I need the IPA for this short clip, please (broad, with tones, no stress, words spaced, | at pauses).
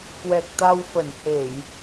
kwɛ˨˩k̚t̪a˧wfə˧˩nhe˧˩˨j